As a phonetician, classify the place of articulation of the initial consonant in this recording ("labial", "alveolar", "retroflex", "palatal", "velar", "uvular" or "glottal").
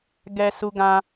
velar